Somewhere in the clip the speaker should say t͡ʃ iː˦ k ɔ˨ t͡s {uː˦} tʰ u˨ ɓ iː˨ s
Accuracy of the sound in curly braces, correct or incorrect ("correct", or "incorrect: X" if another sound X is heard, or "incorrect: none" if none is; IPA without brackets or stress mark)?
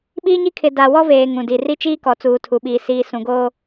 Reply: incorrect: uː˨